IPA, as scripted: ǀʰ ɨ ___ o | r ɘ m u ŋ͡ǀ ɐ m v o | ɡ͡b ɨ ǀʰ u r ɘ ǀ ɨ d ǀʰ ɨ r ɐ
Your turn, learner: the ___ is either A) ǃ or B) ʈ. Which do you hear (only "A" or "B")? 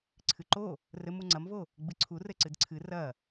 A